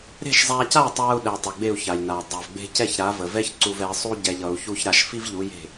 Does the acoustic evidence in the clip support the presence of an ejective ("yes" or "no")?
no